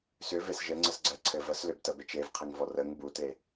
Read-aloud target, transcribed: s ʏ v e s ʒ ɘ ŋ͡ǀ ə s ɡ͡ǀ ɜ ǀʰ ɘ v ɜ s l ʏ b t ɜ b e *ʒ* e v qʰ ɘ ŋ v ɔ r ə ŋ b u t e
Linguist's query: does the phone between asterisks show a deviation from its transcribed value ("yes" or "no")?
yes